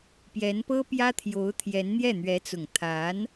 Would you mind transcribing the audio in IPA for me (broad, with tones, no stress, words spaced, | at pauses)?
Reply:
pjɛ˧˥n pɤ˥ pjä˥t̪ʰjo˧˥ʊ̯t̪ʰjɛ˧˥n n̪jɛ˥˩n̪ɥɛ˧˥t͡sʊ˨˩ŋ t̪ʰa˧˥n